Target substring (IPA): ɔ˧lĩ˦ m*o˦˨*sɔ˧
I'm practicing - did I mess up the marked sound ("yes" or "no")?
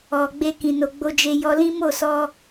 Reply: no